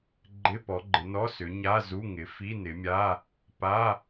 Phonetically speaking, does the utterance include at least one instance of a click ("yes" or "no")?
yes